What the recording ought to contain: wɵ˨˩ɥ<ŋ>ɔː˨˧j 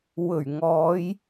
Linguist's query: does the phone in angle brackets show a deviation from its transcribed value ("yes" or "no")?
no